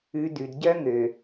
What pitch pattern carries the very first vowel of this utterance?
low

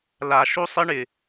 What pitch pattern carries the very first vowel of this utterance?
low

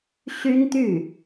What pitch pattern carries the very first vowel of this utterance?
high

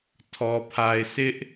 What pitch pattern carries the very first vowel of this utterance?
low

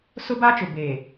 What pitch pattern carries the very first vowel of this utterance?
high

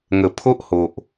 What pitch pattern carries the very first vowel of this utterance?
low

